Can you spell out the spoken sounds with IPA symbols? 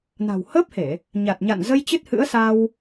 n a̤˨˩ w h əː˦˥ p̚ h e˧˩˨ | ɲ a˨˩ t̚ ɲ a̰˧˨ n z ə˧ j t͡ɕ ɨ˦˥ t̚ h ɨ̰˧˥ ə̯ s a˧ w

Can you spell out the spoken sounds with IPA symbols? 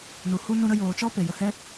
n u˨ h u˦ n ũ˧ ɾ ə˧ j oː˨ t͡ʃ ɔ˦ p e˨ j ə˨ h ɛ˦

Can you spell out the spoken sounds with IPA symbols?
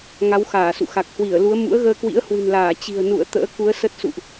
ŋ a˨˦ w x aː˧˩ s ṵ˧˨ x a˨˩ k̚ h w i˧˩ ə̯ l u˨˦ ə̯ m ṵ˧˥ ə̯ ɣ əː˧ k w ḭ˧˥ ə̯ h w ɨ̤˨˩ n l aː˧˩ t͡ɕ i̤˨˩ ə̯ n ṵ˧˨ ə̯ t̪ ə̰ː˧˥ k u˨˦ ə̯ s ə˦˥ t̚ s ṵ˧˨ ʔ

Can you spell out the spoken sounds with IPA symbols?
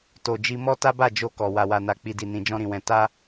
t o˨ d͡ʒ i˧ m ɔ˦ t a˦ b a˦˨ d͡ʒ o˧ k ɔ˨ w a˨ w a˨ n a˨ k͡p i˨ d i˨ n ĩ˨ d͡ʒ ɔ̃˧ ɾ ĩ˨ w ɛ̃˨ t a˧

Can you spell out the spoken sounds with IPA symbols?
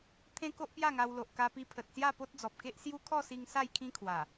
t̪ʰ ẽ˦ k o˦ ʔ p j a˥˧ ŋ a˧ w l o˨ ʔ k a˧ p i˧ pʰ ə˨ t̚ s j a˥˧ p o˦ t̚ d͡z ɔ˨ p̚ k e˦ ʔ s j u˦ kʰ ɔ˥˧ s i˧ ŋ s a˥˧ j kʰ ĩ˦ kʰ w a˨˩

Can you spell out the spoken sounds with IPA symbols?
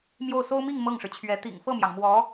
m j o˥˩ ʊ̯ s o˥ ʊ̯ m i˥˧ ŋ m ɤ˥˩ ŋ ʂ ɻ̩˩ t͡ɕʰ ɥ ɛ˧˥ t̪ ḭ˨˩ ŋ f ɤ˥˩ m j ɑ˩ ŋ m w ɔ˧˥

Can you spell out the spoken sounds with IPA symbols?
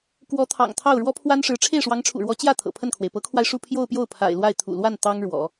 k w ɔ˧˥ t̪ʰ ɑ̰˨˩ ŋ t̪ʰ ɑ˥˩ ʊ̯ ɻ w ɔ˥ pʰ w a˥ n ʂ ɻ̩˧˥ ʈ͡ʂʰ e˥˩ ɪ̯ ʂ w ɑ˧˥ ŋ ʈ͡ʂʰ ṵ˨˩ ɻ w ɔ˧˥ t͡ɕ j ä˥˩ t̪ʰ ɤ̰˨˩ pʰ ə˥˩ n kʰ w e˩ ɪ̯ p ɤ˧˥ kʰ w a˧ ɪ̯ ʂ u˥˧ pʰ j o˥˧ ʊ̯ p j o˥˩ ʊ̯ pʰ a̰˨˩ ɪ̯ l w a˥˩ ɪ̯ t̪ʰ ṵ˨˩ l w a˥˩ n t̪ ɑ˥ ŋ ɻ w ɔ̰˨˩˦

